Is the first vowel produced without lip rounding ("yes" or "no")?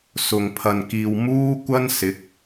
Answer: no